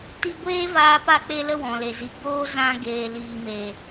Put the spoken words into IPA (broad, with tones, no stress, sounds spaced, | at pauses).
t i˧ ɡʷ eː˦ v aː˧ p a˧ k͡p e˧ l ə˧ w ɔ̃˨ l e˨ z i˨˦ ɡ͡b oː˦ z ã˧ ɡ eː˨ l iː˨ m e˨